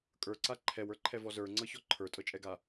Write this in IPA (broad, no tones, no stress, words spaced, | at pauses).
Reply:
kʼə˞ǀa ǃʰɛwə˞ǃʰɛvɔ zə˞ŋ͡ǀɤçɔ ǃʰə˞tʼɤt͡ʃʼɛɡa